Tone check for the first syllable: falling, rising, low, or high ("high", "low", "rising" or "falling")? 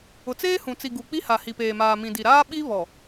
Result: low